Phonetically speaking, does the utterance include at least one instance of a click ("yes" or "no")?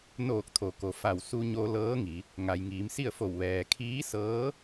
no